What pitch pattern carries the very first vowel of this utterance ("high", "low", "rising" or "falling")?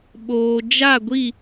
low